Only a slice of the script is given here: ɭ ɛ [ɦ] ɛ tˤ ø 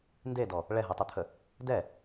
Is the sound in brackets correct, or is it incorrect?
correct